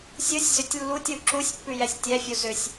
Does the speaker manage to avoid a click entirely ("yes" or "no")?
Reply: no